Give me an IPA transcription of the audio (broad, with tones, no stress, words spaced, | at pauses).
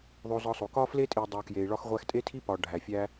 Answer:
ðˤo˧zɒ˧sˤo˨ kɒ˦fle˦tʼi˨ dˤu˨kje˨i̯ ɭɒ˧xʁʷæ˧xtʼe˦tʰi˦ pɒ˨ ɖʱæ˨fʲæ˦